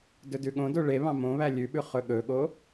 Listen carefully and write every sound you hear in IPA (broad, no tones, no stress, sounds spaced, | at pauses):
d ɵ d ʉ ɠ õ d o ɭ e β ɑ̃ m õ β æ lʲ ʉ ɓ ʉ χ ɵ ɠ ɵ ɠ o